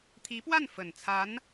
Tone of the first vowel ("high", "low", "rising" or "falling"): rising